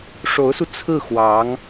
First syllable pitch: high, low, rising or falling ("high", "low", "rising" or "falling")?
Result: rising